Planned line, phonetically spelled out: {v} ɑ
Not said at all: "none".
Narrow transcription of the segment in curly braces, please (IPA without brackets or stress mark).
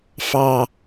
f